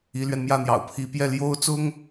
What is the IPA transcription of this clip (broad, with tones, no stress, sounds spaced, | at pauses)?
i˧˥ l ɥ ɛ˧ n m j ä˥˩ n̪ j ɑ̰˨˩ ʊ̯ pʰ i˧˥ p j ɛ˥˩ l j o˥ ʊ̯ t͡s ʊ˥ ŋ